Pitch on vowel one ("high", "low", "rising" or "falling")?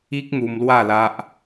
high